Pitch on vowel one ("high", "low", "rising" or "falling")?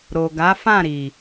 low